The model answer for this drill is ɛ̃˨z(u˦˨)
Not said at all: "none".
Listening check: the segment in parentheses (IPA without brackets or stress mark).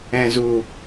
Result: u˨